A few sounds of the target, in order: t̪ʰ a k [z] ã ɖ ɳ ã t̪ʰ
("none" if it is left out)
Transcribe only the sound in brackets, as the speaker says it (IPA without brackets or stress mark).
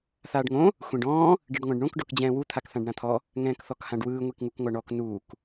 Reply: θ